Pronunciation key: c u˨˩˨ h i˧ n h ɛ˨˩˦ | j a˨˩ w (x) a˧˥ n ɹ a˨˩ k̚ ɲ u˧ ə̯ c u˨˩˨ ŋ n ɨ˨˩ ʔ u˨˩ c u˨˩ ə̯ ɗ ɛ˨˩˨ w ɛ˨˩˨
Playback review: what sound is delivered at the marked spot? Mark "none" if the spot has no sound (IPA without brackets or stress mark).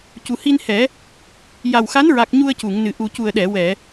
x